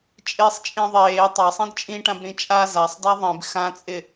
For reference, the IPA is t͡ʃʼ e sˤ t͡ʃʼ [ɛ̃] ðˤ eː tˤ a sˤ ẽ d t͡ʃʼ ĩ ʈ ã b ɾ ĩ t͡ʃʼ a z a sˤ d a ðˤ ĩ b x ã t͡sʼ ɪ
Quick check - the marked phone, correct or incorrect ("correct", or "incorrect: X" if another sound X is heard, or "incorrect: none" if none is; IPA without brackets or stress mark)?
incorrect: ẽ